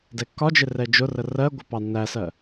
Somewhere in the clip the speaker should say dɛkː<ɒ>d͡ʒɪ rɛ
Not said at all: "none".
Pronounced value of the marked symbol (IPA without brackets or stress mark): ɒ